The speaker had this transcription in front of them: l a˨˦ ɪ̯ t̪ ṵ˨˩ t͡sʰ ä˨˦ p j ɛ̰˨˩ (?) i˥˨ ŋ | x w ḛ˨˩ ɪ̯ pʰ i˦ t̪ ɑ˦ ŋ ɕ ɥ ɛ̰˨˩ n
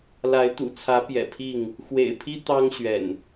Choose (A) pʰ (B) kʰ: A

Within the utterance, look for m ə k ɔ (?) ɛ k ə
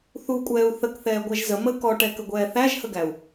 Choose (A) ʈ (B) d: A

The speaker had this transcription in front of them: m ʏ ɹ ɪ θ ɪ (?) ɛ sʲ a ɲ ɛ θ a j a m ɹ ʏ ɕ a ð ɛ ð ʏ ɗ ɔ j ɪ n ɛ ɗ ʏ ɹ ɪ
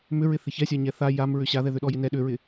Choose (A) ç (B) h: A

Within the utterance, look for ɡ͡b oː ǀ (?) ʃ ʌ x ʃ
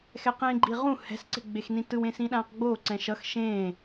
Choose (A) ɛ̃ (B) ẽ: A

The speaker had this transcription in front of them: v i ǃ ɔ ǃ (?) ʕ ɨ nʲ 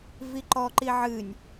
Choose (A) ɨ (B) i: B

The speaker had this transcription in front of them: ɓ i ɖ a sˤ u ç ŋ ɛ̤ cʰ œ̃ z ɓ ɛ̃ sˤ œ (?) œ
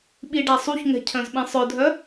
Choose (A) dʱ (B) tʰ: A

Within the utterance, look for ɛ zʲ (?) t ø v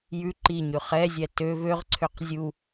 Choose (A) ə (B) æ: B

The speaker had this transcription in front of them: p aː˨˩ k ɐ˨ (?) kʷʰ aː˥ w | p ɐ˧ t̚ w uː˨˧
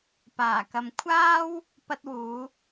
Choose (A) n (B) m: B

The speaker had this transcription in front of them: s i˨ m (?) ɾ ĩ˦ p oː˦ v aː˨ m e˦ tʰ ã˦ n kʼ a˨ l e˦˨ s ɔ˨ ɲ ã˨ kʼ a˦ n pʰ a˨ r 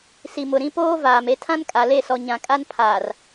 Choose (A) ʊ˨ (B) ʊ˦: A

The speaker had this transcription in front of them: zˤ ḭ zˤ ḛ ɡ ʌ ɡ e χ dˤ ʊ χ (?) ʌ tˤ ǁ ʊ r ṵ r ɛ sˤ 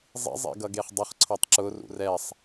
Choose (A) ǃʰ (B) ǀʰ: B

